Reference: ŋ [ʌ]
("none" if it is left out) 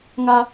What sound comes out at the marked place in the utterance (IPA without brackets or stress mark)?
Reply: a